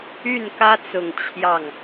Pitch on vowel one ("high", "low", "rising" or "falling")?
falling